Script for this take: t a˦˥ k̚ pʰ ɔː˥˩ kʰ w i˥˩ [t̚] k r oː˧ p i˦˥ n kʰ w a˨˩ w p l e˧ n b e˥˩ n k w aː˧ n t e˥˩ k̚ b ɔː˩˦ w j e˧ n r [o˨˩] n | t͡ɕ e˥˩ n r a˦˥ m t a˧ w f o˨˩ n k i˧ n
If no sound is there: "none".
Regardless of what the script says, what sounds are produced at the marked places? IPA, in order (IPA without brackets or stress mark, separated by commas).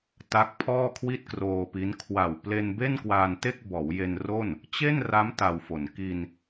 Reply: t̚, o˥˩